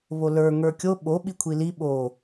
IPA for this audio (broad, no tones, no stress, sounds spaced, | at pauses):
β o l ə˞ ŋ ə˞ kʲ o ɓ o ɓ i kʷʰ i l i ɓ o